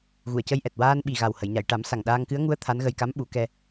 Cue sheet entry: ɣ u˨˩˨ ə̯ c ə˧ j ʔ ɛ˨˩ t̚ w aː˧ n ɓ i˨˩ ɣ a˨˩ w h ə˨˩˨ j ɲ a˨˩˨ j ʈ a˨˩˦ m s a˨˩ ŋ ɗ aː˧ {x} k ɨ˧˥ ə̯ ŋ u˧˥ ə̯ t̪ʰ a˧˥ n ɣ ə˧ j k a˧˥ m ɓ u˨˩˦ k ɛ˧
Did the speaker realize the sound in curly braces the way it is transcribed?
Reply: no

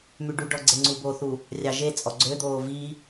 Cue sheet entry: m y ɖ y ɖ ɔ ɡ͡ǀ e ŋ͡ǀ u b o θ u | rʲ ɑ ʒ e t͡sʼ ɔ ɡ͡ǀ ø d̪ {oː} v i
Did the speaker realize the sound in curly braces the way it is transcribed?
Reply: yes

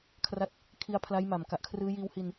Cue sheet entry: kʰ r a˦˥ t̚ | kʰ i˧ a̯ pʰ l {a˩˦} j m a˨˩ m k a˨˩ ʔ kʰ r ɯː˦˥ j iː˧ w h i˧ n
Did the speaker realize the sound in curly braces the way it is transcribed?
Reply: no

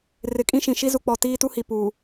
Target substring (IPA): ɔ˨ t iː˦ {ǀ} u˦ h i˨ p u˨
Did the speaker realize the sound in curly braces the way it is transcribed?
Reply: no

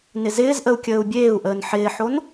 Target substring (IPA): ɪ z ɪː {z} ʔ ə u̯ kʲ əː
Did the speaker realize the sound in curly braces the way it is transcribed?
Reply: yes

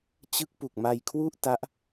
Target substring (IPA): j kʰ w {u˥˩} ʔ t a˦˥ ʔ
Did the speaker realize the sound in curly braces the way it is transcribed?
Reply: yes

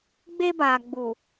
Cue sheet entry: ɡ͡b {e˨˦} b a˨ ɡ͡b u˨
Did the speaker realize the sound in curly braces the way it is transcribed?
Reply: no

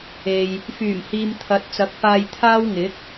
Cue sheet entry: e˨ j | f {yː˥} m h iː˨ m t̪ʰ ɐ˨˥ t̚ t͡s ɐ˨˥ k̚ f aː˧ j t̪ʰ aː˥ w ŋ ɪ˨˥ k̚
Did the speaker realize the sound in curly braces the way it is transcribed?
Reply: no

